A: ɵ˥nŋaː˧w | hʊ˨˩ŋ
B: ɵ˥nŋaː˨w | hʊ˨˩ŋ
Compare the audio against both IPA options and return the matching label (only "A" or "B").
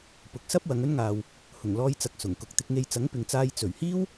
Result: B